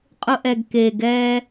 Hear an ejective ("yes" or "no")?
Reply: yes